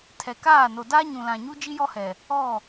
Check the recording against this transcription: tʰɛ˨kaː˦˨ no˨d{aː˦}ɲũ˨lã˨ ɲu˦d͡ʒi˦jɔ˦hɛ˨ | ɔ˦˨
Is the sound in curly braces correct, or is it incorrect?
correct